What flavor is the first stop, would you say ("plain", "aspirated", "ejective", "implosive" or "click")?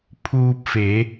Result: aspirated